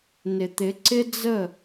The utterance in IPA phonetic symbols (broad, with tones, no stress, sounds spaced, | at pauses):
n ɪ˨ t̪ ɪ˨˦ ǀ ɪ˦ d͡z ə˦˨